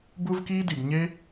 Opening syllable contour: high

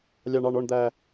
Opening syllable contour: high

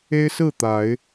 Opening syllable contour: high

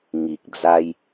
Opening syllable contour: low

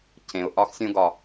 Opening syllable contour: low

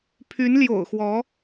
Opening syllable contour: rising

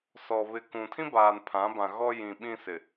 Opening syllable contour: low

